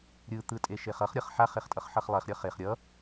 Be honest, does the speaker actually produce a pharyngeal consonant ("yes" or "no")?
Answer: yes